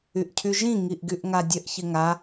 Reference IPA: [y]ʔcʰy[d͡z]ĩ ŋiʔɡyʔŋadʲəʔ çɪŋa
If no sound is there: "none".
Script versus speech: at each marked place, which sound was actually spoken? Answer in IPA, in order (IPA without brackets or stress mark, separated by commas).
y, ʒ